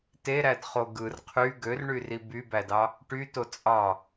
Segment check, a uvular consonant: present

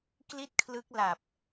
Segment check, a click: absent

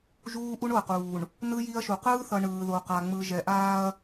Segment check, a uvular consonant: present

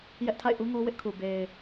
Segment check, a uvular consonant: absent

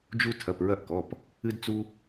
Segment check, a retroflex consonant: absent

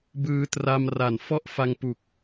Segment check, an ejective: absent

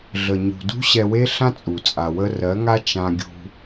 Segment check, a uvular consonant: absent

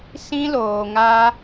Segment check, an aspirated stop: absent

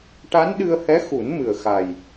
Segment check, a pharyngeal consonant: absent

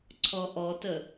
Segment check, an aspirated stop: present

